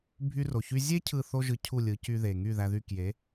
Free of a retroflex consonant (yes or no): yes